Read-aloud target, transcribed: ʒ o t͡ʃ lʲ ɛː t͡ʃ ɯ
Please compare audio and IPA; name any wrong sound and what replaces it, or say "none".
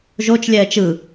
none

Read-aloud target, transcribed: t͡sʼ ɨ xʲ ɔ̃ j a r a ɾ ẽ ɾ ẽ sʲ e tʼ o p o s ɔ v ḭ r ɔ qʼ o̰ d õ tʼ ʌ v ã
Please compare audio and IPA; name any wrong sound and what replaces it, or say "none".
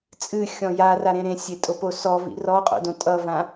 none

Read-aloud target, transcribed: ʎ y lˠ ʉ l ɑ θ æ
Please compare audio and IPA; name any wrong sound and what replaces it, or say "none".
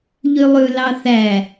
none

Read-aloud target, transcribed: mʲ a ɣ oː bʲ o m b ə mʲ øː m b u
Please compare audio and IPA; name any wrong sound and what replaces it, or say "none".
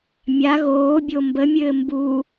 øː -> ɘː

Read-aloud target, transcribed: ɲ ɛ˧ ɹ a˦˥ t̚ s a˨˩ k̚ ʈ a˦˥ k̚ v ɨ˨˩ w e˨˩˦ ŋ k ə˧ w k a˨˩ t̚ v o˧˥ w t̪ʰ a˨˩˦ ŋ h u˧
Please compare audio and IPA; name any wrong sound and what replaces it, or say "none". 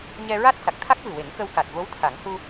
ʈ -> t̪ʰ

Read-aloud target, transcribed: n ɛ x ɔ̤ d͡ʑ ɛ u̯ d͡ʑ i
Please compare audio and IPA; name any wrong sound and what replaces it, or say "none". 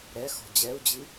n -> ɾ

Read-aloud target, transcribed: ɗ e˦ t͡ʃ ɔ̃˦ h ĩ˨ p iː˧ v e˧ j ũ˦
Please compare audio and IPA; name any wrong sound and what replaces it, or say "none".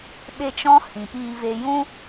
ɗ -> ɓ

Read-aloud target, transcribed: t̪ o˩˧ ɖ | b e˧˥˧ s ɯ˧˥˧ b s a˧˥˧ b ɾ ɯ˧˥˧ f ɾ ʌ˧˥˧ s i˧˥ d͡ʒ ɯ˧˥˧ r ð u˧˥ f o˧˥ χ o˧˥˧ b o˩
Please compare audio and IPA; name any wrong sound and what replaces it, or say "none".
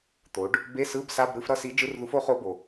none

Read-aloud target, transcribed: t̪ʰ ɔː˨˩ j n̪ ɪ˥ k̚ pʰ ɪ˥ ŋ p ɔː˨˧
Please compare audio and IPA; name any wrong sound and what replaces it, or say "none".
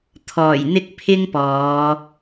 none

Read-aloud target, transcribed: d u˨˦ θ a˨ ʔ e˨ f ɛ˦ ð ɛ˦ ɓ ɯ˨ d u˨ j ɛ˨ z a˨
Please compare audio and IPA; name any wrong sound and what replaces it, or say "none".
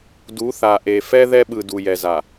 none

